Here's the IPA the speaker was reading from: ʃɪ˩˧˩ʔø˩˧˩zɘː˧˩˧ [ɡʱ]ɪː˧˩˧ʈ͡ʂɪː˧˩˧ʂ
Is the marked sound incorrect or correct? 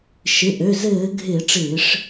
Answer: correct